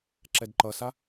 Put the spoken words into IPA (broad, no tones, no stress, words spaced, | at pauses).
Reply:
ǁɛdǃʌsa